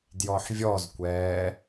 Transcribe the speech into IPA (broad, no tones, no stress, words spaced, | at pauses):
djɔħvʲɔzkʷɛː